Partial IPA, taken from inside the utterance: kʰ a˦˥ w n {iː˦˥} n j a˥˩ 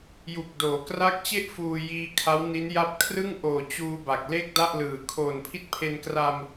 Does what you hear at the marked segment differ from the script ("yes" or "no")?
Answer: yes